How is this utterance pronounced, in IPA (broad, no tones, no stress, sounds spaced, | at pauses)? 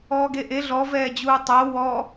ɔː ɡ e ʔ e ɮ ɔ v ɛː d͡ʑ uː tˤ o w ɔ